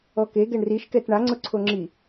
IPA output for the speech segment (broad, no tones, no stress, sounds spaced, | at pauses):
ɔ k e ɡ ɛ ɳ r i ʃ k ɛ t ɳ a ŋ͡ǀ ʊ ǀʰ o ŋ͡ǁ i